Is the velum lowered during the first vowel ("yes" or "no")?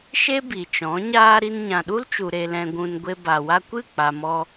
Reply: no